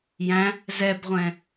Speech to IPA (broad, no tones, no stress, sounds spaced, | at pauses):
j æ̃ | z ɛ b ʁʷ ɛ̃